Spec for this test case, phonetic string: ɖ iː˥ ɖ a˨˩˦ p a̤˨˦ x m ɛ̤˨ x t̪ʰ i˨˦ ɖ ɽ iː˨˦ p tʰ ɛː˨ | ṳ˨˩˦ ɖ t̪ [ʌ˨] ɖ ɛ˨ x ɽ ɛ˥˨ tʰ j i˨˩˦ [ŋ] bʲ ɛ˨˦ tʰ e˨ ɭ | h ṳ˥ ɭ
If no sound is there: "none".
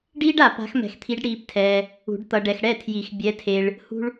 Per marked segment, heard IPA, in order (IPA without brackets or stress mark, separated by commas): ʌ˨, x